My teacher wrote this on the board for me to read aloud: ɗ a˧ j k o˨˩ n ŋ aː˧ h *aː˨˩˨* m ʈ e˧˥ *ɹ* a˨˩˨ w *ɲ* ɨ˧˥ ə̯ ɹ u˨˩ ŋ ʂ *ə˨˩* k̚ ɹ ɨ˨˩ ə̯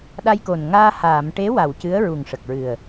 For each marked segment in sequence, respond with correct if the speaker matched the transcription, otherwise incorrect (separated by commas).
correct, incorrect, incorrect, correct